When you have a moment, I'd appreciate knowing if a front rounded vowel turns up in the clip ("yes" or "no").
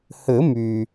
yes